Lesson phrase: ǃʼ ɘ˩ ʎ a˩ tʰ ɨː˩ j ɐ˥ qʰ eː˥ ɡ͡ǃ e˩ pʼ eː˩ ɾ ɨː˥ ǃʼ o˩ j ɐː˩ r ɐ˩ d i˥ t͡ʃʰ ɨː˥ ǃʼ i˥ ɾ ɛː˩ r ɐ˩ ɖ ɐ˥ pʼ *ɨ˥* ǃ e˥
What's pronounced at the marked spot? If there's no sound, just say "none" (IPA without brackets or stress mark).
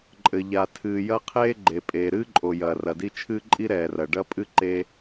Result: ɨ˥